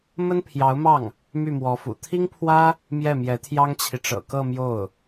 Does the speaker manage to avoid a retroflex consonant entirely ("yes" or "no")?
no